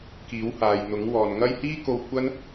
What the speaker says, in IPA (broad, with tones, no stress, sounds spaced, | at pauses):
k iː˨˥ w h aː˨ j n̪ ʊ˨˥ ŋ w ɔː˨ n ŋ ɐ˥ j h iː˥ k o˧ w kʷ ɐ˥ n